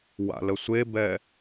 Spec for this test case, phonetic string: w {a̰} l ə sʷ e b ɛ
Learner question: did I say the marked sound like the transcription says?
yes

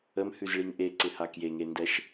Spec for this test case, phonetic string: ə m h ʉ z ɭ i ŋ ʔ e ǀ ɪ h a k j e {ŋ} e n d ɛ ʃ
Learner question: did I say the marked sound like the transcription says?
yes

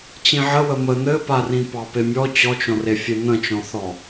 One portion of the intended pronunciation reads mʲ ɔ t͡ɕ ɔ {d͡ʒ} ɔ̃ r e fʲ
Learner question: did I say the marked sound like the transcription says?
no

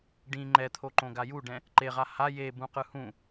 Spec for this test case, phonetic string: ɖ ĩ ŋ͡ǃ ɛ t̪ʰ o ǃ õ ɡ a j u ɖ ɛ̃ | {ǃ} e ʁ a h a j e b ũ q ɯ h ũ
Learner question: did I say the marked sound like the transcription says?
yes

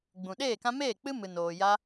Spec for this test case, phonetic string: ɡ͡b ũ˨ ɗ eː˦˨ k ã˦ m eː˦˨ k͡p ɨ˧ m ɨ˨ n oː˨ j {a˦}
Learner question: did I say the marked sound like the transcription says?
yes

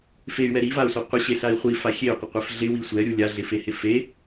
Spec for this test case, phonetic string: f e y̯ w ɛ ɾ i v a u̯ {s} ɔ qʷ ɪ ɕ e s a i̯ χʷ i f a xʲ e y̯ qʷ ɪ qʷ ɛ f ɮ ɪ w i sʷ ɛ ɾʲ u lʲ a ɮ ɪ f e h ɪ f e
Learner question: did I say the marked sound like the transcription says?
yes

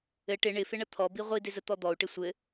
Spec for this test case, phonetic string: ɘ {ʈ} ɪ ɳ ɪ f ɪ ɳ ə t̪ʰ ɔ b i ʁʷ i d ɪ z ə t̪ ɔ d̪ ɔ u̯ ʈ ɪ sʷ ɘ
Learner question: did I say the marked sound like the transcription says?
yes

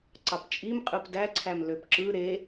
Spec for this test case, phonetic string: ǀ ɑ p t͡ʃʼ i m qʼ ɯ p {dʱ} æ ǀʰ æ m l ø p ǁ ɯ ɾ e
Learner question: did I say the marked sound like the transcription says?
no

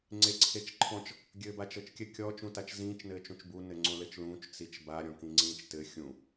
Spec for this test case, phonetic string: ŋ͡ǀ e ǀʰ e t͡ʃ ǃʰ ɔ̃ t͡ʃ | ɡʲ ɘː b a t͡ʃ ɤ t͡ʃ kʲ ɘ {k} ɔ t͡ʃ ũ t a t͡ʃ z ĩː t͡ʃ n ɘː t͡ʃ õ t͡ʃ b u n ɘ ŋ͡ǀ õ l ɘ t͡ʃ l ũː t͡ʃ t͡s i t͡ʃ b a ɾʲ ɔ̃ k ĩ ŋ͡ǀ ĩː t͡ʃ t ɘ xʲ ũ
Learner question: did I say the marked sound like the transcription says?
no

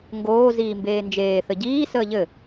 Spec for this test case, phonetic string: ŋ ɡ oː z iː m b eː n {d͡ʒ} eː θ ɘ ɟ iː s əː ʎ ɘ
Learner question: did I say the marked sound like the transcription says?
yes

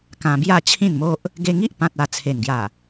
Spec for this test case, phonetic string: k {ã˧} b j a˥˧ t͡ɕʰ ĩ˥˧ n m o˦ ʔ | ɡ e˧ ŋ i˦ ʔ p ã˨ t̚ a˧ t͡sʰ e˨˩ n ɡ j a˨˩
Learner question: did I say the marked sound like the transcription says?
yes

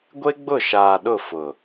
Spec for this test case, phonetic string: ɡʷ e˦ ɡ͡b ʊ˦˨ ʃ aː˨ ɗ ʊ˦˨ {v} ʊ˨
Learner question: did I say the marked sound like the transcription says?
no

